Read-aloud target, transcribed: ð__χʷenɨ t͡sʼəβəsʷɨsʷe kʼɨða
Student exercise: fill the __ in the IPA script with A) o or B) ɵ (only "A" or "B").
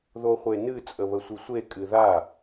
A